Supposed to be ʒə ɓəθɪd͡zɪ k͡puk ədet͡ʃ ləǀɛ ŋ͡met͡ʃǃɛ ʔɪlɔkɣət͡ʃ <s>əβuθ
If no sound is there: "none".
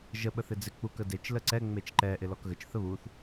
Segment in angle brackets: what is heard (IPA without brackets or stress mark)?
θ